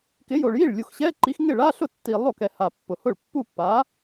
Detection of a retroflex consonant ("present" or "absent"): present